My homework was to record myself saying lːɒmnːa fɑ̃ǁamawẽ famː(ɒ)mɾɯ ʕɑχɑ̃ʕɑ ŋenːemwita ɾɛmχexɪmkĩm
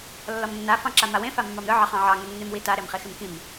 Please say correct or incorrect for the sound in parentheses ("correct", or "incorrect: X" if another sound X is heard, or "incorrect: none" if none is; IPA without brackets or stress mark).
incorrect: ɑ